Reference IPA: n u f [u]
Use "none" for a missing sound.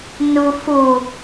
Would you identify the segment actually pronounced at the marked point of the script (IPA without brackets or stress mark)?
u